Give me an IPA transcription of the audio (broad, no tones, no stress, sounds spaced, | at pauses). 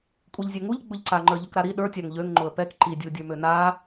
kʷʼ i ʎ zʲ ø ŋ u ʎ ɡ͡b ʊ ʎ ǀ a ŋ͡ǃ ə˞ ʎ ʊ k ɾ a ɾ i ɗ ə˞ tʲ a ŋ ʎ ø ŋ ŋ͡ǃ ʊ ə̯ p ɛ k ǃ i dʲ u dʲ ə˞ m ø n a